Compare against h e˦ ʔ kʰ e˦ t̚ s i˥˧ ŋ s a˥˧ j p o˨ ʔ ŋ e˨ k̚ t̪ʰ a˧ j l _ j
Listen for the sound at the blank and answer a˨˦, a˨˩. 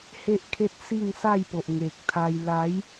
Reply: a˨˦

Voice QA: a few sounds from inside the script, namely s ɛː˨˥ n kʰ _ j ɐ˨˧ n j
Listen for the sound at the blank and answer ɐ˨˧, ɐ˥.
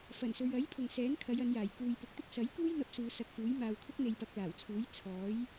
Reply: ɐ˨˧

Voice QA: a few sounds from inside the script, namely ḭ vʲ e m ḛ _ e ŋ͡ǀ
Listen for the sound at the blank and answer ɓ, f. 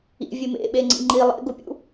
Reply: ɓ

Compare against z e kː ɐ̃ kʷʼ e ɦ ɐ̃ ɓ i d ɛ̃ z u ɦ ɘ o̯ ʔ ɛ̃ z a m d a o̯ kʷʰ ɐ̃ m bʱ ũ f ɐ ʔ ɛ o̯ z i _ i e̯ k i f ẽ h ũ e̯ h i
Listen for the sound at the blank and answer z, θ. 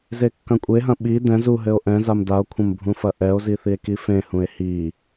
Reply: θ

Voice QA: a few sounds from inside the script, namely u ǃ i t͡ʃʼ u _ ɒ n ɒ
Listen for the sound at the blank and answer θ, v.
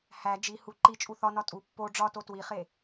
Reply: θ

